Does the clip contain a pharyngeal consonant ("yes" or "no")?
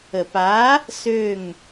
no